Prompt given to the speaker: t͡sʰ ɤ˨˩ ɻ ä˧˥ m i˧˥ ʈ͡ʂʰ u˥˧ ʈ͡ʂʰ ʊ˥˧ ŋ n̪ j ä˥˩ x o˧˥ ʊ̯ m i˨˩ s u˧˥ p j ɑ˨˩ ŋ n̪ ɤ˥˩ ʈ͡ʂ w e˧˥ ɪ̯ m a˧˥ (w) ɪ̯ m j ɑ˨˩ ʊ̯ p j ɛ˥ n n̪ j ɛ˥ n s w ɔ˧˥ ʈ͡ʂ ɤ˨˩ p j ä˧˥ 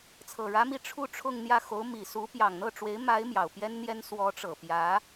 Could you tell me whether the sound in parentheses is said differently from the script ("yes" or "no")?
yes